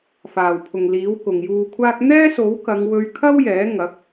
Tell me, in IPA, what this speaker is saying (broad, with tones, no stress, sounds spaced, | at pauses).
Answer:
f aː˨˩ w pʰ ʊ˨˩ ŋ l iː˨˥ w k ʊ˨ ŋ j uː˧ kʷʰ aː˥ k̚ n̪ ɛː˥ s o˨˥ w k ɐ˨˧ ŋ w ɵ˧ ɥ kʰ ɐ˥ w j ɛː˨˥ ŋ ɐ˨˥ k̚